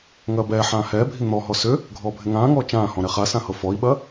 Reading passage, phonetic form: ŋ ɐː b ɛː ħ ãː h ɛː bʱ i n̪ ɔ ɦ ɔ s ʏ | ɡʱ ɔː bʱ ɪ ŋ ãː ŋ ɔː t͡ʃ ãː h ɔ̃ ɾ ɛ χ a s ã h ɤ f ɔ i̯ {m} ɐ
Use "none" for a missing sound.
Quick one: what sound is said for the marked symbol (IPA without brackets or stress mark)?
ɓ